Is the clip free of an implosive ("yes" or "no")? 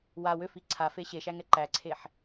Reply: yes